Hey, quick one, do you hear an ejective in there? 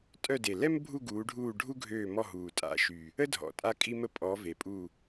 yes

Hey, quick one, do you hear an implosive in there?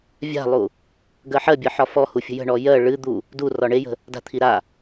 no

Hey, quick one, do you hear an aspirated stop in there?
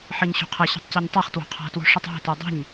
yes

